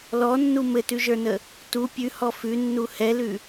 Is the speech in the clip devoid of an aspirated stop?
yes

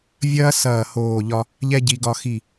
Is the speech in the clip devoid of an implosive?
yes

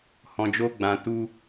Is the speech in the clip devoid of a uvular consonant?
yes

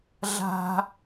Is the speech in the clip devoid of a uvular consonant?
yes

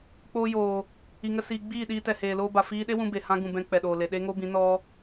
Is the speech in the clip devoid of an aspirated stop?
yes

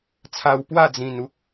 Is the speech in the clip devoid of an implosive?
yes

